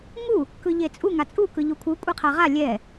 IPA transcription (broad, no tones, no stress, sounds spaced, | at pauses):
ŋ u | k ɯ ʎ e t͡sʼ u ŋ a t͡sʼ u k ɯ ʎ u kʷʰ ɯ kʷʼ e qʰ a ʁ a lʲ ɛ